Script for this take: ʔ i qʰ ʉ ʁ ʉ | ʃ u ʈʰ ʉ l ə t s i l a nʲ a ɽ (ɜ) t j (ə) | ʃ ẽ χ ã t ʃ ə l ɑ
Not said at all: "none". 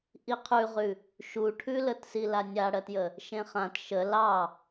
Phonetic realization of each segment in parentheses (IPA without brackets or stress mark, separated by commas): ɜ, ə